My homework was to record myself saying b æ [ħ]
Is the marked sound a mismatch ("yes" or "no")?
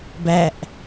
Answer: yes